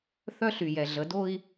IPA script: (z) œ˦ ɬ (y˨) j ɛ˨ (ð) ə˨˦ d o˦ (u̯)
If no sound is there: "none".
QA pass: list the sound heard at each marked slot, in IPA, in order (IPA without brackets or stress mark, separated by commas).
θ, y˨, ɮ, i̯